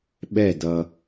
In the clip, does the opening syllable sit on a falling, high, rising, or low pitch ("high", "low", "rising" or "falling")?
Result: falling